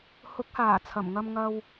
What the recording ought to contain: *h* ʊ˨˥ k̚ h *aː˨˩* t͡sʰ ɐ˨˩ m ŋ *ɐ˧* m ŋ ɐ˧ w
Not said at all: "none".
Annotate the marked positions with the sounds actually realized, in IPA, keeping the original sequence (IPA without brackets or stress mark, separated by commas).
h, aː˨˩, ɐ˧